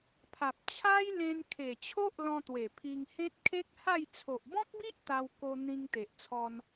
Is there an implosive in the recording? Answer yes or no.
no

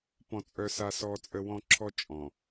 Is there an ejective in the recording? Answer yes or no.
yes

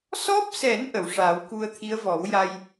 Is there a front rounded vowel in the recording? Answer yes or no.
no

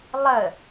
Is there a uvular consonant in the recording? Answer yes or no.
no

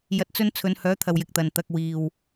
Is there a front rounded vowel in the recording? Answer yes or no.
yes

